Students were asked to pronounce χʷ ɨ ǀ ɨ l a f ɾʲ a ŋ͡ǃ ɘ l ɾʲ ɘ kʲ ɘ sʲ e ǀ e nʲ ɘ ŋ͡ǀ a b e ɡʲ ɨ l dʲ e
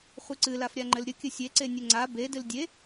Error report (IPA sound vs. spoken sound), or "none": ɡʲ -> d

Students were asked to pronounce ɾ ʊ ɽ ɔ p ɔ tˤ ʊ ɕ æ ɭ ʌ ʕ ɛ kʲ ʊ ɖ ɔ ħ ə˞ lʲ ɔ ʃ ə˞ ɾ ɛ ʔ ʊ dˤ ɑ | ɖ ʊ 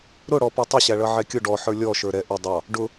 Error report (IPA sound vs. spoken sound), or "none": none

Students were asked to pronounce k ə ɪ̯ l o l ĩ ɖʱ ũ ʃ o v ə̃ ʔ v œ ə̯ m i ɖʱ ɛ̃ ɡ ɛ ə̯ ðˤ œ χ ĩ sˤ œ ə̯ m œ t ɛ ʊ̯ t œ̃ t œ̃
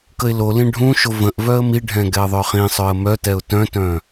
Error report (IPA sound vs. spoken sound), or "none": none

